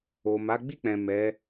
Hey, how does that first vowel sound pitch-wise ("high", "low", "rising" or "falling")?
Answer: low